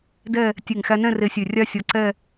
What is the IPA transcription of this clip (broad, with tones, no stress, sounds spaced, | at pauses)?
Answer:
d ɛ˥˧ | tʲ e˧˩ ŋ x æ˧ n ɛ̃˥˧ r e˧ sʲ ø˧˩ rʲ a˥ sʲ ɔ˧ ǀ ɛ˥˧